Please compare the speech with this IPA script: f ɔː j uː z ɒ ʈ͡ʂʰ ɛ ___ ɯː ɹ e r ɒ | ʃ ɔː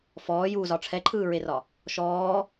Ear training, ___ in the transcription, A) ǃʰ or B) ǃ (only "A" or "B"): A